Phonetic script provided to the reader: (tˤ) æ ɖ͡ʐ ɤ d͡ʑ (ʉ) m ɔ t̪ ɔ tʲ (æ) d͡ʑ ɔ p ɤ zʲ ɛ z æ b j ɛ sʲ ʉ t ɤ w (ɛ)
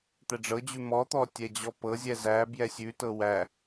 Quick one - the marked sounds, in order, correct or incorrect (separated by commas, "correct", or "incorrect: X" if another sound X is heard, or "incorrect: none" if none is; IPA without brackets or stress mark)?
incorrect: t̪, correct, incorrect: ɛ, incorrect: æ